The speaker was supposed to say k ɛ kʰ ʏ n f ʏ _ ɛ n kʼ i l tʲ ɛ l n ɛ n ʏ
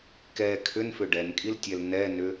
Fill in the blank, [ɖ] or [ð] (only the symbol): ɖ